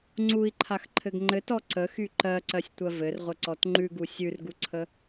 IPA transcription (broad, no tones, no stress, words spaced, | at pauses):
ŋ͡ǀui̯ǃʰaxǃʰɘɡ ŋ͡ǃɘtɔ ǀəxy ǃɜǀɜsʲtʷɜ vɘrʁʷəǀɔt ŋ͡ǃʉɡu sʲʉrɡuǀʰə